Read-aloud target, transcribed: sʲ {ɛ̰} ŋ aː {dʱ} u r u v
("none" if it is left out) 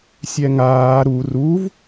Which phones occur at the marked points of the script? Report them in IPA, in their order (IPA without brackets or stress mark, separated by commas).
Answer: ɛ, ɾ